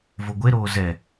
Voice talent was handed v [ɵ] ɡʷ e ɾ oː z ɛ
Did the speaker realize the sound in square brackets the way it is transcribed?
no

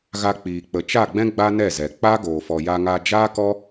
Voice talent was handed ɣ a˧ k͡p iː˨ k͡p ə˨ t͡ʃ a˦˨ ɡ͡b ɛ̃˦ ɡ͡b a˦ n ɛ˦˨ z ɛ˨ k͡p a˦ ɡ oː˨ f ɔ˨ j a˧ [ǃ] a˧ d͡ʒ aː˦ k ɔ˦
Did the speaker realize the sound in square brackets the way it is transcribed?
no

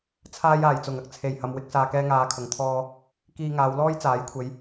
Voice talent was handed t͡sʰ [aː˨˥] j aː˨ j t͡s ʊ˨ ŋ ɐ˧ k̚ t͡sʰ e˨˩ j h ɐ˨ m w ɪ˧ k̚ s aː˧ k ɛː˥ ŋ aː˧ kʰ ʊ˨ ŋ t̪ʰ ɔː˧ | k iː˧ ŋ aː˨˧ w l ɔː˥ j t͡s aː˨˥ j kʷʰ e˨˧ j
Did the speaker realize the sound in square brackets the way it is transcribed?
no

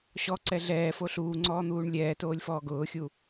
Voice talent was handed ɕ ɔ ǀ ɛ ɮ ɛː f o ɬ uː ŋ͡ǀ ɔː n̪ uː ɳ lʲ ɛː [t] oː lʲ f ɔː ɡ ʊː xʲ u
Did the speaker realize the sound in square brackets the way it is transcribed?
yes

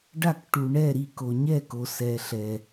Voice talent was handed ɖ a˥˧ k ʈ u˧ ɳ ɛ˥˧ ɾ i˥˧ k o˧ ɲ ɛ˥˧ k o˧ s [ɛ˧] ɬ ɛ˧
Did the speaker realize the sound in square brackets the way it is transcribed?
yes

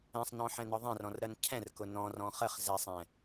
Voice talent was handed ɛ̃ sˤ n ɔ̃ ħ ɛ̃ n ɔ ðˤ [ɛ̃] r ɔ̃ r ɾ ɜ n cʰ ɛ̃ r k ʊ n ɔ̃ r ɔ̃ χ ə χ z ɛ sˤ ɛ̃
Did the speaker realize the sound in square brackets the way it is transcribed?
yes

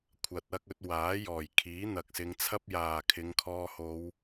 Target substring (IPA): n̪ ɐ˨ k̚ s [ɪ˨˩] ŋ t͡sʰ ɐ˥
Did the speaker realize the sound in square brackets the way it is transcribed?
no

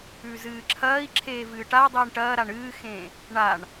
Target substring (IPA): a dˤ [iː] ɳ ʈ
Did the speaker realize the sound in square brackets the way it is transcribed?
yes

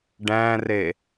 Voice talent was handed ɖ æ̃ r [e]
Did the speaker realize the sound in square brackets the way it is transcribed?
yes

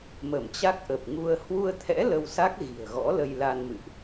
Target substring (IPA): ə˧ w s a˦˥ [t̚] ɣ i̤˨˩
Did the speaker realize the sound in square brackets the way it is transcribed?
no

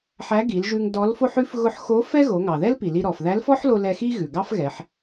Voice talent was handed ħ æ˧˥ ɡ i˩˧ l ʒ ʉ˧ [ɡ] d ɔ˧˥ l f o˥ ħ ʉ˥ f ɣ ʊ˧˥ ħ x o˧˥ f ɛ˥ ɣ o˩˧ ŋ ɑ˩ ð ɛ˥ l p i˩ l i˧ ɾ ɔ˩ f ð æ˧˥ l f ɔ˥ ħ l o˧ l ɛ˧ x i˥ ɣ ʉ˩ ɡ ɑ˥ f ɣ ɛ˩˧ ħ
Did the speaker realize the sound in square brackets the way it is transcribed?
no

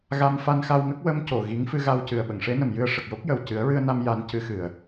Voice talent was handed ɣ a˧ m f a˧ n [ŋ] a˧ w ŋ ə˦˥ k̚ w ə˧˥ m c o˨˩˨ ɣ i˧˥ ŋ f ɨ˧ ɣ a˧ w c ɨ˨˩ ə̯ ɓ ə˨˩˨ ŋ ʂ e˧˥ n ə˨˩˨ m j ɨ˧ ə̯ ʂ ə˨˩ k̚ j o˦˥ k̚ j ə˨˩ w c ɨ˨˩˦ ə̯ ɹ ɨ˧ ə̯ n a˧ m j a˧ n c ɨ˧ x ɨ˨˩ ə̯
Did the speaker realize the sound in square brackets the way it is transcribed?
no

